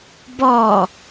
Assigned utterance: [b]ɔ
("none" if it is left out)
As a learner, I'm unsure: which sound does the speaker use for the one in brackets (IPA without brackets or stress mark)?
b